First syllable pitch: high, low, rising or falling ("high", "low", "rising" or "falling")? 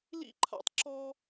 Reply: high